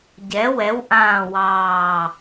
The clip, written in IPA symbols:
ɟɛ˩˧wɛ˩˧wʔãː˨˩wɑː˨˩

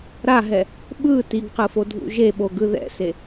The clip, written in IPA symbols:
ɾaɦɛ | ɓɯ tiɡqɯ fodʱṵʒeɓo ɡɯðɛ̰se

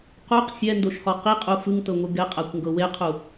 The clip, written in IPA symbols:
quq sʲɛndoʃhɔ qiqʼu fɯŋtɤŋʷɯ ɡɛqʼakʷŋɡɤ weqʰu

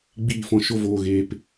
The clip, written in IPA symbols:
ɡ͡biː˦˨fɔ̃˧ ʃo˧voː˨ɣeː˨p

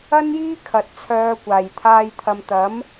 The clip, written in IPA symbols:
ɐ˥njiː˥kʰɐ˨t̚ t͡sʰœː˨˧kʷaː˨˩jt̪ʰaː˧j t̪ʰɐ˨mt̪ɐ˨˥m

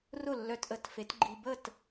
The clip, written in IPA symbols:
rʊ˥˩lːœ˧tʔə˩˥t fe˩˥tɡ͡ǃi˧ bə˥˩t

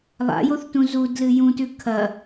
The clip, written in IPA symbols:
lˠa̰joθtũ zudlɨ jũtʉ kʰɐ

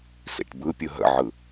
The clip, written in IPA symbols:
sḭʈbɯ pʲɯɦə̰ʕɯ

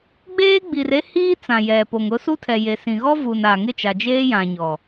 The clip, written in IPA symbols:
ɡ͡beː˦ɡ͡bi˨re˦ hiː˦t͡sã˨jɛ˨ po˨ŋʊ˦ su˦tʰɛ˨je˨ sĩ˨ɣɔ˦ vu˨na˨ ŋɪ˦˨t͡ʃa˨d͡ʒeː˦jã˨ ɲɔ˨

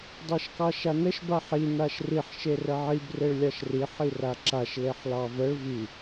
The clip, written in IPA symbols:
dˤɑʃkɑʃanəʃ baħi naʃriħ ʃerəʕib reɭlʲɑʃri ħiraǁaʃ leħlɑvəɭ vi

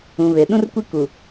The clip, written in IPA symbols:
ũ˨βe˨ ɗũ˦rkʷi˦ ku˨

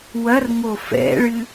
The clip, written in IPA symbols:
wɐrŋo fɛ̰ɭɨ

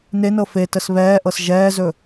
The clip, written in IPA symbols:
nenɤ fetəs βɛːʔɤs ʒɛːzɵ

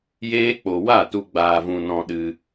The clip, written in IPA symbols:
jeː˦k͡po˧ wa˦˨ tu˧ ɡ͡baː˧vũ˧ nɔ̃˧ɗɨ˧

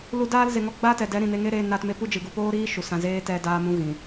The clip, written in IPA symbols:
lu˧daː˦lze˨ŋɔ˧ ɡ͡ba˦tɛ˨dɛ˨˦ ɾĩ˨ne˧ŋe˦ɾeː˧ naː˧tme˦pu˦d͡ʒɨ˨ ɡu˨poː˦ɾiː˦ ʃu˨sã˧ zeː˦tɛ˧daː˧mũ˨˦ ɣĩ˨

